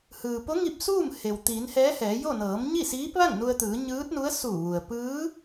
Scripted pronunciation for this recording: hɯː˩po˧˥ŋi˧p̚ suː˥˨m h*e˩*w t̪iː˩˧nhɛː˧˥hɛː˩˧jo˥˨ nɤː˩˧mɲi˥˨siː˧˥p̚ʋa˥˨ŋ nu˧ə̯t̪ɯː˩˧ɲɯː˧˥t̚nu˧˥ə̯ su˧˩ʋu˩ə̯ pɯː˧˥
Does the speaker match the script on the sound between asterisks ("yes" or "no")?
yes